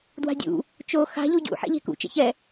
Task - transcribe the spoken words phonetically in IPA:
d w a̤ dʲ ṵ | t͡ʃ o x a̤ ʎ u ɟ ṵ ħ ɛ̰ ʎ e̤ k ṵ t͡ʃ ɛ̰ ç ɛ

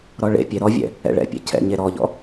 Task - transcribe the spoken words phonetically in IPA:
ɾ ɔ ɭ ḛ pʲ e ɾ ɔ vʲ ɛ̰ | ɛ̰ ɭ ɛ̰ pʲ ɛ̰ cʰ ɛ̰ ɲ e ɾ ɔ ʎ ɔ̰

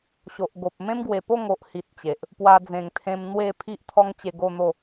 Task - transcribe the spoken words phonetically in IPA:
ɕ o˨ ʔ ɡ o˨ p̚ m ẽ˦ m ɡ w e˨˩ p o˥˧ ŋ o˨ ʔ h i˨ t̚ t͡ɕ e˨ ʔ | p w a˧ d͡z ẽ˨˩ ŋ t̪ʰ ẽ˧ m n̪ w e˥˧ pʰ i˦ ʔ t̪ʰ ɔ˦ ŋ t͡ɕ e˧ ɡ o˥˧ n̪ o˥˧

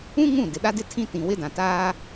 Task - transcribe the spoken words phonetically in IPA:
ũ˦ ŋ ũ˦˨ d ɪ˨ ɗ a˦ d ɪ˦ tʰ ĩ˦ t ĩ˨ w ɪ˦ d ã˨ t aː˦

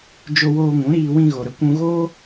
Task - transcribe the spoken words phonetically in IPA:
d͡ʒ o˧ w oː˧ ŋ ũ˨˦ ɾ iː˧ w ĩ˧ ɣ o˨ ɾ ə˧ kʷ ũ˧ ɣ oː˦

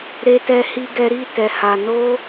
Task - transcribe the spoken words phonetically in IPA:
ɾ e˦ t ɛ˦ h i˦ ɡ ɛ˦ ɾ i˦˨ t ɛ˨ h a˨ n o˧

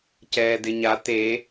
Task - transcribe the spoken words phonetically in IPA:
c ɛː d ɪ ɲ a t̪ e

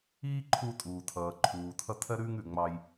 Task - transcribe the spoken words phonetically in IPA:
iː˥ ǃʰ uː˧ tʼ uː˩ tʰ ʌː˩ ǃʰ uː˩ tʰ ʌ˧ tʰ ɜ˧ ɾ ʉː˧ ŋ ʉ˩ ŋ͡m ɑ˧ j

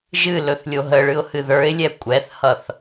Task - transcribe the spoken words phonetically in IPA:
ʒ ɨ l ɵ θ lʲ o ɦ ə ɭ ɨ ʊ̯ h ɨ ð ə˞ ɪ̯ lʲ ɛ kʷʼ ɛ θ h ʌ θ

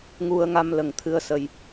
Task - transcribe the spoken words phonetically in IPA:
ŋ u˧ ə̯ ŋ a˧ m l ə˨˩ ŋ t̪ʰ ɨ˧ ə̯ s ə˧ j

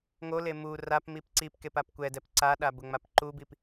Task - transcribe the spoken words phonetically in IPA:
ŋ o l e m u r a p m i p ǀ i p k e p a p kʷ ɛ d ɛ p ǀ a ɗ a b ʊ ŋ͡m a p ǃ u b i p

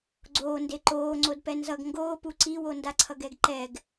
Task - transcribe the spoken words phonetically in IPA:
ɡ͡ǀ oː n d e ǃ oː ŋ͡ǀ o d p ɛ n z ʌ ɡ ŋ ɡ oː p u ǀ i w o n d a ǀʰ ʌ ɡ ɛ ɡ ǃ ɛ ɡ

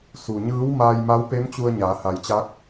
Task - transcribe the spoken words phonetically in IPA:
s u˩ ɲ ɯː˧˥ w m aː˧ j m a˧˥ w p e˧˥ m t͡ɕ u˧ ə̯ ɲ aː˩˧ h a˩ j t͡ɕ a˧˥ k̚

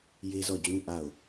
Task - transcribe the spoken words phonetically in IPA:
j e˦ z ɔ˦˨ d͡ʑ ũ˦ ʔ a˦˨ ʊ̯

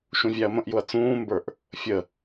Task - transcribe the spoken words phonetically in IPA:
ʃ ũ vʲ æ ɐ̯ m ə̃ ʔ j ʊ ɐ̯ t͡s ũː m b ə˞ ʔ | fʲ ə

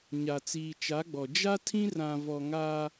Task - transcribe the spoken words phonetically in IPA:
ɲ a˨ t͡s iː˨ t͡ʃ a˨˦ ɡ͡b ɔ˨ d͡ʒ a˦ tʰ ĩ˦ r ã˨ v ɔ˨ ŋ aː˦

